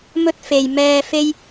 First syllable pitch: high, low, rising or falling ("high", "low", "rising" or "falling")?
high